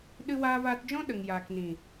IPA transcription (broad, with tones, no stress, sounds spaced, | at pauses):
ɗ ɨ˧ w aː˧ v aː˧ t d͡ʒ ɔ̃˦ ɗ ə˨ ŋ j aː˨ k n ĩ˨